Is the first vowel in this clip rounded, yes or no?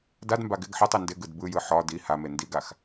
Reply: no